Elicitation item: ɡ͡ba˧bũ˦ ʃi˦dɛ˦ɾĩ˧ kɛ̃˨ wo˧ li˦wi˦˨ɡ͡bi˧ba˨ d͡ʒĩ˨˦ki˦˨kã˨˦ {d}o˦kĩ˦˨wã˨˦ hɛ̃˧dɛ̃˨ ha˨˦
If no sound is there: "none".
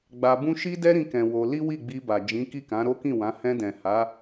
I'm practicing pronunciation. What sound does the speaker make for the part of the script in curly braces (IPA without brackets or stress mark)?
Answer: ɾ